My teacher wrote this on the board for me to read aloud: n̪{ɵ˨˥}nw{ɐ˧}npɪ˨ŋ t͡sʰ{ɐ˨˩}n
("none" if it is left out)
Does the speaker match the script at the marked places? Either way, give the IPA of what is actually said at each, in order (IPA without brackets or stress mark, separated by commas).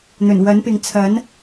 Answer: ɵ˨˩, ɐ˨˥, ɐ˨˥